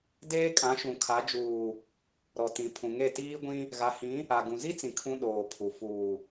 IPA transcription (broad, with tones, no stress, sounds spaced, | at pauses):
d eː˦ kʼ ã˨˦ ʃ ũ˨ kʰ a˨˦ d͡ʒ uː˨ | ɾ ɔ˨ t ĩ˨ pʰ ũ˨ ŋ e˦˨ t iː˦ ɡʷ ĩ˦ | ɣ a˨ h ĩ˨˦ | a˨ ɡ ũ˨ z i˦ t͡s ĩ˨ kʰ ũ˦ ɗ oː˨ pʰ u˨ f uː˨